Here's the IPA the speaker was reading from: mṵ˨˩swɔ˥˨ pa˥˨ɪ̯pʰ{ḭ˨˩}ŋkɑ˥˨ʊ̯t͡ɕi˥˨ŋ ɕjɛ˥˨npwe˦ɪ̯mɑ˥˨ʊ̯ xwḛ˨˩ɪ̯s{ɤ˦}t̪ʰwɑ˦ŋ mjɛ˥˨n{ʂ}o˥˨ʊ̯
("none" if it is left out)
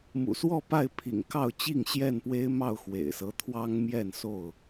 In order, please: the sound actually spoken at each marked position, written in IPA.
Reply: ḭ˨˩, ɤ˦, s

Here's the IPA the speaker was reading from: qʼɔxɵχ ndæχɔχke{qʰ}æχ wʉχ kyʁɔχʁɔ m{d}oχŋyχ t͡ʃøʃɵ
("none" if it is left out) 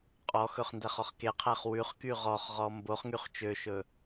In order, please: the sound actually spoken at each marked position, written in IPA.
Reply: qʰ, b

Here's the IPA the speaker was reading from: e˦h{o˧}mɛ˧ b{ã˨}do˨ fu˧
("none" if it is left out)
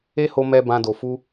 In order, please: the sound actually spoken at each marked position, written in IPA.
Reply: o˧, ã˧

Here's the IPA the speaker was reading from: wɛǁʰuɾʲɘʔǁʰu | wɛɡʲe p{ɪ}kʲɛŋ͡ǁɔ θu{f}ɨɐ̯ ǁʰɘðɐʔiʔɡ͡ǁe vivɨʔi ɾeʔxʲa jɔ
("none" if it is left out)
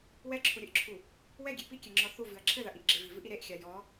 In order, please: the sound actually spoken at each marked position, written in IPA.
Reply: i, v

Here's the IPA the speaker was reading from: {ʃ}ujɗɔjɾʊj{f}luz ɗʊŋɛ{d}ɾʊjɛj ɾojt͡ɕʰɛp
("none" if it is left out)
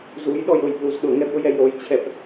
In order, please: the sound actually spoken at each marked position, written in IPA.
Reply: z, p, b

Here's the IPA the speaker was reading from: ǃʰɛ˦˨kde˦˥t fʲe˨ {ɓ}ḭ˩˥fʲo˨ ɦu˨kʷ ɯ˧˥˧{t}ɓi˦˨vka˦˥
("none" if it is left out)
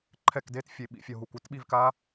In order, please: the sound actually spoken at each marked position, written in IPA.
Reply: ɓ, t

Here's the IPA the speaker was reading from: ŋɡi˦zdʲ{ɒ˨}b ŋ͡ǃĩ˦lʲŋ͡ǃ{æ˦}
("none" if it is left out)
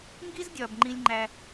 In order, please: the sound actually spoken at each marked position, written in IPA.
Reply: ɒ˨, æ˦

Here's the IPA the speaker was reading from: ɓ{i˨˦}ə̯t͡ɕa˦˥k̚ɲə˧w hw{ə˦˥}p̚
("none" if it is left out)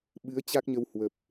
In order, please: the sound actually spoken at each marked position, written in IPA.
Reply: ɨ˨˦, ə˨˩

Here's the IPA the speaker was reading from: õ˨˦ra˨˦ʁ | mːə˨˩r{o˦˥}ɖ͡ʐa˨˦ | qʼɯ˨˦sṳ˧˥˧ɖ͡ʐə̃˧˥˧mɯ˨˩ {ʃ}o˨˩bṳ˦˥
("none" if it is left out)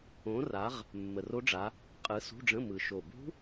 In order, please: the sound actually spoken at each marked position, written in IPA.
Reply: o˦˥, ʃ

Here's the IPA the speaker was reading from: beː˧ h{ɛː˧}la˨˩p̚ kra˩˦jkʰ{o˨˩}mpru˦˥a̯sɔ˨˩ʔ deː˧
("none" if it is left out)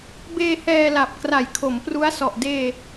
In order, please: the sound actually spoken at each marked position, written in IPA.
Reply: ɛː˧, o˩˦

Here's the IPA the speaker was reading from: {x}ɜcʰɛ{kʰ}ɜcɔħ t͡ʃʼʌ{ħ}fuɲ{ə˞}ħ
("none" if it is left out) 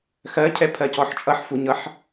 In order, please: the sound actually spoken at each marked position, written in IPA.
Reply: x, pʰ, ħ, ʌ

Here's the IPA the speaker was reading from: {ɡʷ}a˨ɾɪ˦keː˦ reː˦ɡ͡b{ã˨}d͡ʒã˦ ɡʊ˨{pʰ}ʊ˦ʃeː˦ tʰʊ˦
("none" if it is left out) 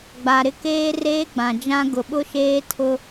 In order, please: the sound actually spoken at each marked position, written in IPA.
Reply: ɡ͡b, ã˨, ɓ

